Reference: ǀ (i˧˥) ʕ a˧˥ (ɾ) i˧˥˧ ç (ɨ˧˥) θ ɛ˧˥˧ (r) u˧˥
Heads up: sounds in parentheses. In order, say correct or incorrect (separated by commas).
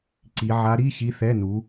correct, correct, incorrect, incorrect